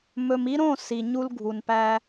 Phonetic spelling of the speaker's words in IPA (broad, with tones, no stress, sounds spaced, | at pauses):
m ɵ˨ m i˦ ɾ õ˦˨ s i˨ ɲ u˦ l ɡʱ u˨ n p æ˦